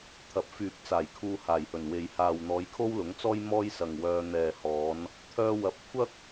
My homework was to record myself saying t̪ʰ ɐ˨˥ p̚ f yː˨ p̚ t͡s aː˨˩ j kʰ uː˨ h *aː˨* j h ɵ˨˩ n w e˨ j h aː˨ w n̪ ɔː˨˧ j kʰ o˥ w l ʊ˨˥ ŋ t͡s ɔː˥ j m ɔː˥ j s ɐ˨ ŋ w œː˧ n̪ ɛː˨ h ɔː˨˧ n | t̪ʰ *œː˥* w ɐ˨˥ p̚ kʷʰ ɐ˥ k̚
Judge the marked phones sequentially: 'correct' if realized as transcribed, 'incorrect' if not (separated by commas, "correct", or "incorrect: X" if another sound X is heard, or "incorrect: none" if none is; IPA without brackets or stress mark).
incorrect: aː˨˩, incorrect: œː˧